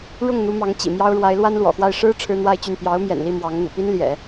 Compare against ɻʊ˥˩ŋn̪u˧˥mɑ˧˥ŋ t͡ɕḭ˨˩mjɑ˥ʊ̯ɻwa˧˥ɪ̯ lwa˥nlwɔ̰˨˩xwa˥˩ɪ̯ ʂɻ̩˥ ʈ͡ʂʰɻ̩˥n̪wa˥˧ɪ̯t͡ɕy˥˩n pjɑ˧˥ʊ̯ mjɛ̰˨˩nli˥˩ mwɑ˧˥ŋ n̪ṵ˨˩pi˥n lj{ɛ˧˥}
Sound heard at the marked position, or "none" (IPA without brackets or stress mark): ɛ̰˨˩˦